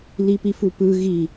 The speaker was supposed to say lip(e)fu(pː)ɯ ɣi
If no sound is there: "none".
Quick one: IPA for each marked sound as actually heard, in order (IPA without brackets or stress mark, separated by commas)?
i, p